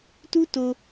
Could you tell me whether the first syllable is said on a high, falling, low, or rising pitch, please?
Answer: high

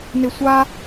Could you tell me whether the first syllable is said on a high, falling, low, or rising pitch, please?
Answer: high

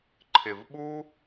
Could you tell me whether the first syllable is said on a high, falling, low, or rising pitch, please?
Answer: low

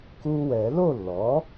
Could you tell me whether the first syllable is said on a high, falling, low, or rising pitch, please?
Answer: high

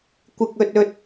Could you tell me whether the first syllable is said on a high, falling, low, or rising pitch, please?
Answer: high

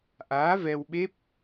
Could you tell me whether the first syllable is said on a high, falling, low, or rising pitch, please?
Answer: rising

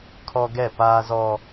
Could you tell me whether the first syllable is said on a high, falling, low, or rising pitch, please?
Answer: high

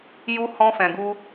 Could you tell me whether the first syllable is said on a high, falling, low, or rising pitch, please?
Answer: high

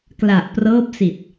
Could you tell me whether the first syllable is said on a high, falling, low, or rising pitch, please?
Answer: low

